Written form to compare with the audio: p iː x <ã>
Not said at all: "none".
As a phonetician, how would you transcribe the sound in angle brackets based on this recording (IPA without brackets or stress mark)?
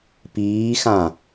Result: ã